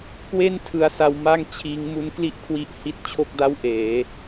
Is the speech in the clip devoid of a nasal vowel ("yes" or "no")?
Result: yes